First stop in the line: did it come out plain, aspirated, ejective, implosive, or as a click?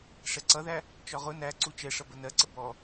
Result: click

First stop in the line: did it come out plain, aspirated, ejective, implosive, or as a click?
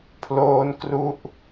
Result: aspirated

